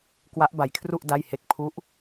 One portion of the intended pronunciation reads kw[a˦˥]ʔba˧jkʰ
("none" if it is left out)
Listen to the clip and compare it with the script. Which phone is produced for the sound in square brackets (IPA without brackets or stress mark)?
a˦˥